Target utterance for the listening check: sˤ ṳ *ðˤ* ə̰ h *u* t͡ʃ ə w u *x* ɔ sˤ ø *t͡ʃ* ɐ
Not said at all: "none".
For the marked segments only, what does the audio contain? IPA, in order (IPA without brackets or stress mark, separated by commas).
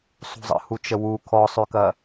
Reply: zˤ, u, kʰ, k